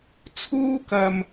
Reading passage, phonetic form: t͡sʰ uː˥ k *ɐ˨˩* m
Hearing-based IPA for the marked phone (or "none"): ɐ˨˩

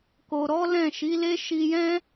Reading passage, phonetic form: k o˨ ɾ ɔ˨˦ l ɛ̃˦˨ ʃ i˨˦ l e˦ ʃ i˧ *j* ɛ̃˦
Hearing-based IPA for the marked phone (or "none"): j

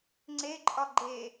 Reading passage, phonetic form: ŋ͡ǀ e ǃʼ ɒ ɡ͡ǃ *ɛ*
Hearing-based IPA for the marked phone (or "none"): e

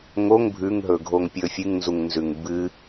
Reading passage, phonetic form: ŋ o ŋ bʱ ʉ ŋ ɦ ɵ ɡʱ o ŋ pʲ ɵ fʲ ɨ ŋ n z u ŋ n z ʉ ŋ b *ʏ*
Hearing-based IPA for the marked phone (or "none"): ɨ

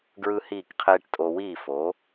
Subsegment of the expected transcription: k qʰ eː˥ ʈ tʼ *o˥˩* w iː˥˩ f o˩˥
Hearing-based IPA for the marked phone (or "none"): o˧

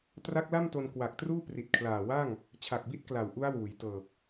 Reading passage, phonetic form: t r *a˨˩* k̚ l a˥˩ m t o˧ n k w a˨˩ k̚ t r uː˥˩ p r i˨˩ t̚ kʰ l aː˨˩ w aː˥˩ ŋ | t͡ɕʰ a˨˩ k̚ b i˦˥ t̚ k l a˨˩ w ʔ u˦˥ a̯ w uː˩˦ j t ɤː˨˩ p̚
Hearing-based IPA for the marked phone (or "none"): a˦˥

